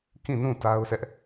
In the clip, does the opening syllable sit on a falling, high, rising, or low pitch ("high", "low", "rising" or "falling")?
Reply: falling